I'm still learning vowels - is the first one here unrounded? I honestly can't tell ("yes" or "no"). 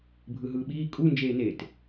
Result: yes